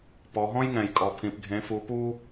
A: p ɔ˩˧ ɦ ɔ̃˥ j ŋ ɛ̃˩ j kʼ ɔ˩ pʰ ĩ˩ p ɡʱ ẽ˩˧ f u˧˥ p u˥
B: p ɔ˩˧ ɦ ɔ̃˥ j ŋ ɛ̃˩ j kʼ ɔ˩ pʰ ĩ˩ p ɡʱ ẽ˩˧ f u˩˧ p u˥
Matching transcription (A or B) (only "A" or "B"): B